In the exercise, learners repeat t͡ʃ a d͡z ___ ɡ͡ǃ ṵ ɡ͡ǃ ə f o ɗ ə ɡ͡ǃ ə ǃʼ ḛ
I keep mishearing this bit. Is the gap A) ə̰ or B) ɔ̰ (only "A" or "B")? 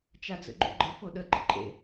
A